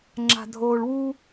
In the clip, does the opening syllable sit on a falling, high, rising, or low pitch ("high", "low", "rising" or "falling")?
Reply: low